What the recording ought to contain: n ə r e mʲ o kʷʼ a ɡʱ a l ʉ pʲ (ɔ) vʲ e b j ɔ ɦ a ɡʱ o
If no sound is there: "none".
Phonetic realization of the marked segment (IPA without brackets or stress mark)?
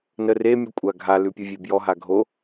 o